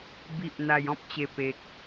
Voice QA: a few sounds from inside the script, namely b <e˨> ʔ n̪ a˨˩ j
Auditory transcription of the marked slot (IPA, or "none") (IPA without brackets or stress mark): i˨